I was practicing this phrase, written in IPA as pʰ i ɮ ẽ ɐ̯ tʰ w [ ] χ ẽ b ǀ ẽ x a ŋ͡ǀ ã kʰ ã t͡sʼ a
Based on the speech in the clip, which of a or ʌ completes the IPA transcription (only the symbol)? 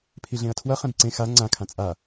ʌ